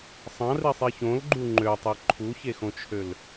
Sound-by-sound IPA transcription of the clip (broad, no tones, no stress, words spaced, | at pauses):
sˤɑ̃risˤi çõlɡ͡ǃu ŋ͡ǃøtˤi ǃʰuçexõt͡ʃʰøl